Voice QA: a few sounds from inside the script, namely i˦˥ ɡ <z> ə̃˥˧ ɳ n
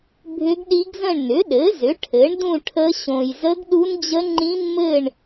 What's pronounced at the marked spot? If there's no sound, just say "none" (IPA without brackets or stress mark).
z